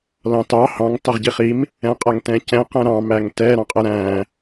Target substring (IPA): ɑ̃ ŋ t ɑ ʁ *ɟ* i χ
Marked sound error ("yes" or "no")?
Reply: no